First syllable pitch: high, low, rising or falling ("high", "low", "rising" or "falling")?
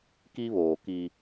high